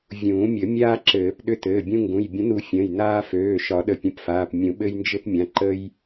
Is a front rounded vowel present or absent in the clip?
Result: present